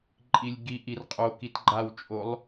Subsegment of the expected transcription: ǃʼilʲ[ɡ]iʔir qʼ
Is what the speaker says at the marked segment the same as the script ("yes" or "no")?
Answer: yes